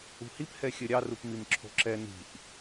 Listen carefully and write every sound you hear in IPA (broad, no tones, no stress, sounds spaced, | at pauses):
ṳ h i p h ɛ xʲ ɘ ɾʲ ɑ r u p m i m ǁʰ o̤ ǁ ɛ n i̤ ʔ